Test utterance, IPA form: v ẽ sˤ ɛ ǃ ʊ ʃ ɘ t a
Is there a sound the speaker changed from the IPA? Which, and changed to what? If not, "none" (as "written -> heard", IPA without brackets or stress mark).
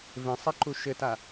ʊ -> u